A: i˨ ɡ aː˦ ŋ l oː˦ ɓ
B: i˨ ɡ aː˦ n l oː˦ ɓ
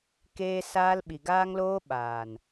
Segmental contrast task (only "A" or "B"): A